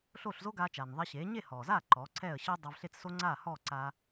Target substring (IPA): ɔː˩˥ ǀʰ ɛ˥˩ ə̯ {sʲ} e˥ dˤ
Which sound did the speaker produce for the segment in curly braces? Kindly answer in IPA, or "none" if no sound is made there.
ɕ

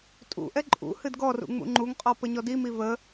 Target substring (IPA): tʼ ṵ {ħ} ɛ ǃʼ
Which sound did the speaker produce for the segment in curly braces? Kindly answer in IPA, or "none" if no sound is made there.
ʔ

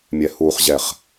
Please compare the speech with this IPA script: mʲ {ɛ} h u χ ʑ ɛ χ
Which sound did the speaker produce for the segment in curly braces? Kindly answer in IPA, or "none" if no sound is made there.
ɛ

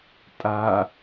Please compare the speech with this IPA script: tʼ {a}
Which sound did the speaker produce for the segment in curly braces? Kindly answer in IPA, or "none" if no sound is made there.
a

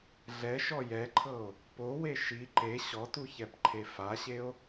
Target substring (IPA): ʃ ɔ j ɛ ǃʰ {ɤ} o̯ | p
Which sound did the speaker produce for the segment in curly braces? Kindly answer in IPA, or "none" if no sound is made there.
ɤ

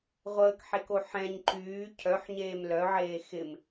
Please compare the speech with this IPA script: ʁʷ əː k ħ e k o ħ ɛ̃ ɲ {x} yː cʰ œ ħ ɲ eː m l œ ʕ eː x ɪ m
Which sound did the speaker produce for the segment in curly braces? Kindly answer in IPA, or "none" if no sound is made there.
ǃ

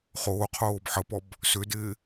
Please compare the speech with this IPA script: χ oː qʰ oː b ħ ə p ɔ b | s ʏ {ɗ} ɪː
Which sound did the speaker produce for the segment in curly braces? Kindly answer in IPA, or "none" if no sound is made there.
d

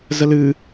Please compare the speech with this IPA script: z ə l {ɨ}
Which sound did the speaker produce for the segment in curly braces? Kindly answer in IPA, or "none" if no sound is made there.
ɨ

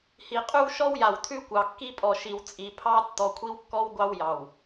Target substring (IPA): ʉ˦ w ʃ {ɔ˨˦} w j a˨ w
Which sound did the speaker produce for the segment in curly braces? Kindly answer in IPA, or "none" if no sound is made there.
ɔ˦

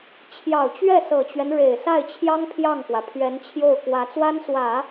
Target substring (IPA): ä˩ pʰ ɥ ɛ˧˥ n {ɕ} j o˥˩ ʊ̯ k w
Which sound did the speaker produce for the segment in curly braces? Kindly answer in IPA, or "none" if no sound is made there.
t͡ɕʰ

